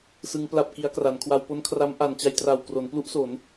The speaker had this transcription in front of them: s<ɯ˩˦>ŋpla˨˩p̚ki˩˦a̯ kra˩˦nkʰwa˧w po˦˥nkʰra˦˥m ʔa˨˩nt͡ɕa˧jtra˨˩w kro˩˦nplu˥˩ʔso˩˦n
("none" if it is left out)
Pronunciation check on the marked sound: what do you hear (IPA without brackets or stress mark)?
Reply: ɯ˩˦